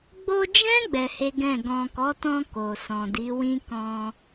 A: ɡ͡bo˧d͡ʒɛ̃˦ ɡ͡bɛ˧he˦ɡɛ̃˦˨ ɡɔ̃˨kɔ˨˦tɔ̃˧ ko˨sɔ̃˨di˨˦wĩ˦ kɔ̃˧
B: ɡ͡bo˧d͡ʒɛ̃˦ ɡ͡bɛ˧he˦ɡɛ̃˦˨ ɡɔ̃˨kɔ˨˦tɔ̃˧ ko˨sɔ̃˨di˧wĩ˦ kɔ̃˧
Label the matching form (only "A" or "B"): A